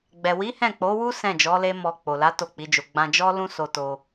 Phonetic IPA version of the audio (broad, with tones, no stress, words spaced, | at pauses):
ɡ͡bɛ˨wi˨˦ hɛ̃˦˨k͡po˨˦wu˦ sɛ̃˦˨ d͡ʒɔ˨˦le˦mɔ˧ k͡po˨la˨˦ to˦˨k͡pi˨˦d͡ʒo˧ ɡ͡bã˧d͡ʒɔ˦ lũ˦so˧to˧